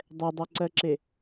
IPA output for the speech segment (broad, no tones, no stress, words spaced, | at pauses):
dˤɛdˤɜǀɜǁe